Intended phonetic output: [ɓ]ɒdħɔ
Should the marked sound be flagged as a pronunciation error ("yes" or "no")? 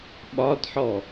no